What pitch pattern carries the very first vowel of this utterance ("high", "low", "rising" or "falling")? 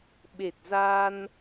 low